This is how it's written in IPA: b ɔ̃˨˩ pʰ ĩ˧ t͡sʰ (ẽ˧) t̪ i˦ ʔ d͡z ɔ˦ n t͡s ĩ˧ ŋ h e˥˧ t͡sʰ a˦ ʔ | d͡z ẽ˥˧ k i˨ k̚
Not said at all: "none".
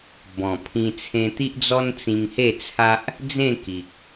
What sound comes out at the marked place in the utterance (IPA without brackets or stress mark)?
ẽ˧